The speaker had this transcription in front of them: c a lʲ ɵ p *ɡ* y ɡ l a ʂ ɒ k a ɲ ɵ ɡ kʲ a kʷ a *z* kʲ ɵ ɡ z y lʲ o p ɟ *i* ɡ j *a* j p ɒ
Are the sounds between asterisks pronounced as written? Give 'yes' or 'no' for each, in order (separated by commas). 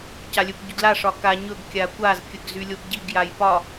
no, yes, yes, yes